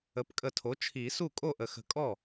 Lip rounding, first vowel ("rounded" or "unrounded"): unrounded